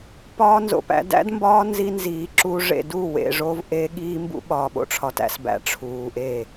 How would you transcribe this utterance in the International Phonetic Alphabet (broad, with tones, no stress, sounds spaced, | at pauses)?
p ɒː˦ n z o̰˨ p æ̰˦ d æ̰˦ d m b ɒː˦ n z i˦ n z iː˨ ǁ u˦ ʐ ḛ˨ d u˦˨ w ḛ˨ ʐ o˦ v ʔ e˦ ɠ iː˦ m b ṵ˦ ɓ ɒː˨ ɓ o̰˦ ʈ͡ʂʰ ɒ˨ t æ̰˦ s b æ̰˨ ʈ͡ʂʰ uː˨ ʔ e˦˨